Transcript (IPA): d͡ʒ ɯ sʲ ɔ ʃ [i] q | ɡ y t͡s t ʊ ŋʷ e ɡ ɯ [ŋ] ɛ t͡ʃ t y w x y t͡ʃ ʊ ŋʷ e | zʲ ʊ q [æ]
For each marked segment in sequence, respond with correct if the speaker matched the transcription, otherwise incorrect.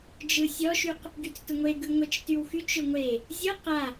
incorrect: y, incorrect: ŋʷ, incorrect: a

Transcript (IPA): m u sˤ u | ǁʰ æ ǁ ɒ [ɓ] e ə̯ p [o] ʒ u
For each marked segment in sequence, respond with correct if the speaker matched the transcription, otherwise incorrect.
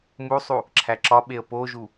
correct, correct

